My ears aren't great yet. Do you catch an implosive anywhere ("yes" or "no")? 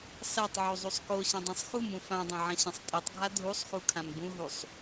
no